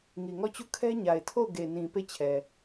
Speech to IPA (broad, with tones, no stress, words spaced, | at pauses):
ŋi˨ŋɔ˦˨t͡ɕu˦˨ kʰɛ˦ɲa˨ɪ̯tʰo˦˨ʊ̯ ɡe˨nĩ˨ pe˦˨t͡ɕʰɛ˨